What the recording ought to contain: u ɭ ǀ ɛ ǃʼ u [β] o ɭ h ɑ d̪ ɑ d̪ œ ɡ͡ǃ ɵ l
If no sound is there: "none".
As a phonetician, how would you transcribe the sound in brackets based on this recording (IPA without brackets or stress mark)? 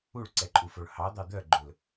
f